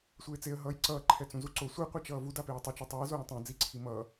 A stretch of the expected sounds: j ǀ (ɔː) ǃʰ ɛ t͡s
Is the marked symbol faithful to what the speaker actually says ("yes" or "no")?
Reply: no